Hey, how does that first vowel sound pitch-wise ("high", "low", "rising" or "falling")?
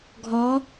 rising